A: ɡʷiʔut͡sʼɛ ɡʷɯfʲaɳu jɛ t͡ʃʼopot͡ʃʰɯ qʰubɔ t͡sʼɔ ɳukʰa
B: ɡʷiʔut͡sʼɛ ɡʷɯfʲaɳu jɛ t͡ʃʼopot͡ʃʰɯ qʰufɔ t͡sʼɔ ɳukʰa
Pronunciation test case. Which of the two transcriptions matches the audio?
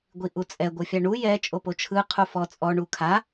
B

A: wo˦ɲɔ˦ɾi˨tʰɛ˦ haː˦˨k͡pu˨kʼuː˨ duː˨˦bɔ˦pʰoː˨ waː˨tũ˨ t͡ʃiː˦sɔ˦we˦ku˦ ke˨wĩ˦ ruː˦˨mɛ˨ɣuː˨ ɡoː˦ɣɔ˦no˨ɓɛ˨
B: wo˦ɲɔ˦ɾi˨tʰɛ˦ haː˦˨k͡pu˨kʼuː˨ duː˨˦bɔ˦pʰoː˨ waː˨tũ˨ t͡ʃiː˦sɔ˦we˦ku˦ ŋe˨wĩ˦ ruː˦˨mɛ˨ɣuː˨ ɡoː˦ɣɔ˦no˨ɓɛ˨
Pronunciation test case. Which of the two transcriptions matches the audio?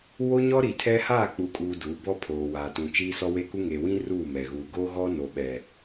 B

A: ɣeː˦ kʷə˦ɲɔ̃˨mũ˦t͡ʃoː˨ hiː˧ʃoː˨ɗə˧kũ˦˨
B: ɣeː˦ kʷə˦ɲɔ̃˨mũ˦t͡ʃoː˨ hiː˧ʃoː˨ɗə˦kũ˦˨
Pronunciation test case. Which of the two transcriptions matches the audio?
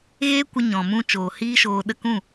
A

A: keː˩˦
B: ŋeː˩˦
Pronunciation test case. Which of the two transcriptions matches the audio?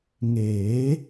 B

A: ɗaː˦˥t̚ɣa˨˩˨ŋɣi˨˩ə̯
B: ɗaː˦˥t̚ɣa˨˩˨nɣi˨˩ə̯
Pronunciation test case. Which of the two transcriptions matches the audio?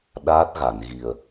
B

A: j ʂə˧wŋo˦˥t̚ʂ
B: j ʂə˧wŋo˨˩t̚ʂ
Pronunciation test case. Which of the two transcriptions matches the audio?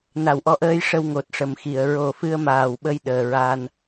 B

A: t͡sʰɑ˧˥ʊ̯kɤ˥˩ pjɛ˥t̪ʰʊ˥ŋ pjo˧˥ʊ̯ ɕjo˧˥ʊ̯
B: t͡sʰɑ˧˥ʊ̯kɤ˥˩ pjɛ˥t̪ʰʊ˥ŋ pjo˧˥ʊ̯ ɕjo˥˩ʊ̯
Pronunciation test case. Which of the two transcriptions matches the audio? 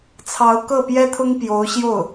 B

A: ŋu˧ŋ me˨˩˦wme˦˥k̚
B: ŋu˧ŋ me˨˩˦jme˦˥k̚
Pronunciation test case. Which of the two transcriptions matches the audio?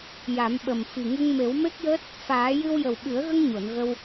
A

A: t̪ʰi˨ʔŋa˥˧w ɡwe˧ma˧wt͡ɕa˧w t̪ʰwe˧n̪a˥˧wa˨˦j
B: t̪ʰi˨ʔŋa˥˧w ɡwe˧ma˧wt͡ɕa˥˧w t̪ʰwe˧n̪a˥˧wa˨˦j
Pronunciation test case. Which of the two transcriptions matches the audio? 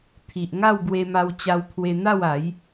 A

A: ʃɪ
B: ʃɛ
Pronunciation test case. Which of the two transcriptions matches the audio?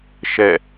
B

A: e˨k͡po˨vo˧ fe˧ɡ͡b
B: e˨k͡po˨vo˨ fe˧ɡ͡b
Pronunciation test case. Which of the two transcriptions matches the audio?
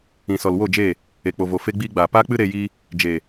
B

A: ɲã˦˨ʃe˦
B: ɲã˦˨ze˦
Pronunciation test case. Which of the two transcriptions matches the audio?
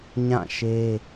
A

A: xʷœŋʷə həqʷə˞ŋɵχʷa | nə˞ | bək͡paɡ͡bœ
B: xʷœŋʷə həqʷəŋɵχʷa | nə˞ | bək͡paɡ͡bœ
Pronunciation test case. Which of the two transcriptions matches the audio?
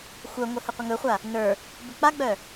B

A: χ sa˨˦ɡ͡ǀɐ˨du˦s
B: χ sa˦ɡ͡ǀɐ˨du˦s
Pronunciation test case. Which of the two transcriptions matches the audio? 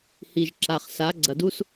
A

